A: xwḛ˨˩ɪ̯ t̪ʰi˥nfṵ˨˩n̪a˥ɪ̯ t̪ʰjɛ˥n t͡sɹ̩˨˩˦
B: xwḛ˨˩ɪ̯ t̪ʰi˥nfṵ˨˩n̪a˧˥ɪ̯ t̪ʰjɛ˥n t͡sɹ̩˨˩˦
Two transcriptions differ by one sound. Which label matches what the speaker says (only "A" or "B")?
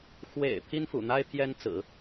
A